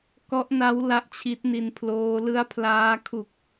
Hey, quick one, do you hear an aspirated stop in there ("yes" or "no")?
yes